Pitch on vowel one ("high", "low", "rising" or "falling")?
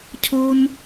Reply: high